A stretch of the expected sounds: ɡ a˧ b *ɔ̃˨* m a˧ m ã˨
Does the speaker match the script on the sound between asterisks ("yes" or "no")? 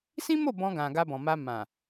yes